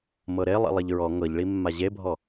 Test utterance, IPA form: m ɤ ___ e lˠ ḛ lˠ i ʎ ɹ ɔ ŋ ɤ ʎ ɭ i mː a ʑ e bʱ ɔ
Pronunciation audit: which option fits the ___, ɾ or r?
ɾ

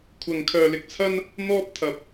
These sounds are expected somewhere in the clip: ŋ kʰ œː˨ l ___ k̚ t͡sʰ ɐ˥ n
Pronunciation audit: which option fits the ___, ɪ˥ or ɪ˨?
ɪ˨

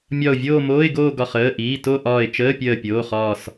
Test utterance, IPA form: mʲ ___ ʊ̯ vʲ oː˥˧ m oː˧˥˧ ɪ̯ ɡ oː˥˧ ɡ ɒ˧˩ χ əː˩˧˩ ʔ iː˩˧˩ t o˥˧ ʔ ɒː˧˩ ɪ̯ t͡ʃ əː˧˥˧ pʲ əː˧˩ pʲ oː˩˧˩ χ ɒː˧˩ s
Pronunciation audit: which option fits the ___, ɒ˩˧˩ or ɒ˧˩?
ɒ˧˩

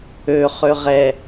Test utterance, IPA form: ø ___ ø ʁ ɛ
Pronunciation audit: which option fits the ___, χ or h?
χ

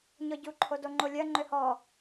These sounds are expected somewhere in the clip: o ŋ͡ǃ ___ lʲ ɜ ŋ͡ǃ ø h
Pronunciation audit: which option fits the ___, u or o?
o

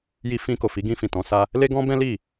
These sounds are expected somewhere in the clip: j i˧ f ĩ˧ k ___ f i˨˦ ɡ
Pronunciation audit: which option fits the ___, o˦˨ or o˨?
o˨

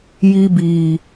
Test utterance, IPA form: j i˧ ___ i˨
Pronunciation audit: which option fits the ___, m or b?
b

